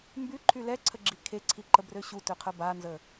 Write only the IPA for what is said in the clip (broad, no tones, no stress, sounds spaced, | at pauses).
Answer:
m b y ǃʰ y l ɛ ǀʰ ə ɡ͡ǁ i kʰ e ǀʰ i ǃ ə b r ø ɕ u t ø qʰ ə b a n z ə